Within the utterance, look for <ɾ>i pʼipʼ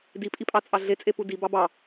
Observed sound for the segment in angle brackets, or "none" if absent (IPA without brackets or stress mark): d